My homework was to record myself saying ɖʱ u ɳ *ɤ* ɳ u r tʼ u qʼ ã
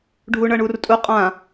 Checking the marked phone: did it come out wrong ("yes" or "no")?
no